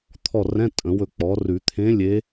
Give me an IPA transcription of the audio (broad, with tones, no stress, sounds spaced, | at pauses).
t̪ʰ ɔ˦˨ r ɛ̃˧˥˧ tʼ ə̃˨˩˦ w ɵ˦˨ k͡p ɔ˩˥ r ʉ˨˩˦ t̪ʰ ẽ˧˥ lʲ e˧˥